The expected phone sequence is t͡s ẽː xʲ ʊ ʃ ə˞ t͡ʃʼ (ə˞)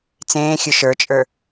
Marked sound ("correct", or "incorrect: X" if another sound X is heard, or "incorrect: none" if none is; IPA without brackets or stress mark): correct